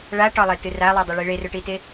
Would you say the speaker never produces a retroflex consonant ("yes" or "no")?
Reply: no